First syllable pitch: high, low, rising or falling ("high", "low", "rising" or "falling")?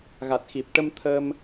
low